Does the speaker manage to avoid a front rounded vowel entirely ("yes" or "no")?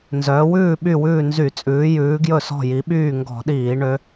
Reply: no